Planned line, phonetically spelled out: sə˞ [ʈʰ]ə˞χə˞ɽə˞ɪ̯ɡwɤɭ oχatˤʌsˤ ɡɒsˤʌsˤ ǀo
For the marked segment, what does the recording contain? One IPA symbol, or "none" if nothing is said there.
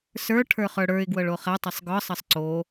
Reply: ʈʰ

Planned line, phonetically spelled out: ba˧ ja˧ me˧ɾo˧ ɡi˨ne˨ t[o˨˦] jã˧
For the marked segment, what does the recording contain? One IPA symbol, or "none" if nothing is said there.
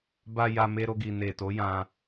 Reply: o˨˦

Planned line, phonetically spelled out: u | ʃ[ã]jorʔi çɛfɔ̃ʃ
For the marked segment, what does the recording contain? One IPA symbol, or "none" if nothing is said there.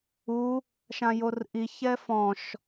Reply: ã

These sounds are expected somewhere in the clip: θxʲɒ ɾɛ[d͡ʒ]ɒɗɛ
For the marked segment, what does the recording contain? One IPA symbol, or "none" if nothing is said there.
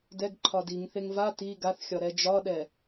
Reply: d͡ʒ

